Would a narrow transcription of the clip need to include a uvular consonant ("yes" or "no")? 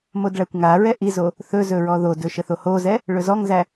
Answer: no